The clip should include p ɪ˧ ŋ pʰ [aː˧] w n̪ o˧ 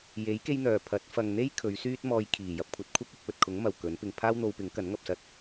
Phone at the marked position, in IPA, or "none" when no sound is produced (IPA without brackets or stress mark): aː˥